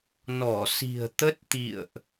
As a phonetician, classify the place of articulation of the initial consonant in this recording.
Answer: alveolar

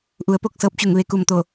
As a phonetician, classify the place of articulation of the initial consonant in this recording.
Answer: glottal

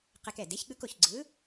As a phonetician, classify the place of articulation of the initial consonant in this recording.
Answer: uvular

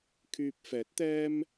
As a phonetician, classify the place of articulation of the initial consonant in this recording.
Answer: velar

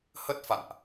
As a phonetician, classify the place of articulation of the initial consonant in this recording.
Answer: glottal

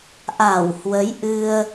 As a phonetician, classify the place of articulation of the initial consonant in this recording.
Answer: glottal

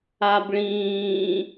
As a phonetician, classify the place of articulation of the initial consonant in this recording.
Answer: labial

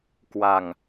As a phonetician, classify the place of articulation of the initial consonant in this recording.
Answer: velar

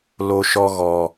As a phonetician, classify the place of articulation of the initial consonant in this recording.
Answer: alveolar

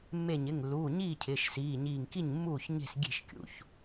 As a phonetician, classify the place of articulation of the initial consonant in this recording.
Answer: labial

